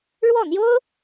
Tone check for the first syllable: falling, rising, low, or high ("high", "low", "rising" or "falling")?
falling